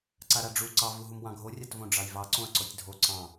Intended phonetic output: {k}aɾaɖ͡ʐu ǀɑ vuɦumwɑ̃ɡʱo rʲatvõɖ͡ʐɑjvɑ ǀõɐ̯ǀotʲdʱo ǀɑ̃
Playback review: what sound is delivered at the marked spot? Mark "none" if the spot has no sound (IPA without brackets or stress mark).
ǀ